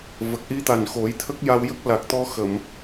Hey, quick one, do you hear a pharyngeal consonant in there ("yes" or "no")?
no